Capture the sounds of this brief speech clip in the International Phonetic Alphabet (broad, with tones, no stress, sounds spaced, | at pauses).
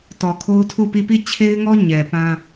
t ɔ˨ kʰ o˦ ʊ̯ tʰ u˦˨ p i˦˨ p i˦˨ t͡ɕʰ e˦ ɪ̯ ŋ ɔ˦ ɲ ɛ˨ p ã˦